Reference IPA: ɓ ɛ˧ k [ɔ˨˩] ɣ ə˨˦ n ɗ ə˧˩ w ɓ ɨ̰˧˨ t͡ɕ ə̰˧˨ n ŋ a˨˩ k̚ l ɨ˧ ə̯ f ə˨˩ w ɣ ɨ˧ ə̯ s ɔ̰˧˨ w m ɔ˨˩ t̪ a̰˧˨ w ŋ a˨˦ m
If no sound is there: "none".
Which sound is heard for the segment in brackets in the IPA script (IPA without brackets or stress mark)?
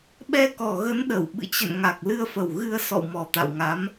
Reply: ɔ˨˩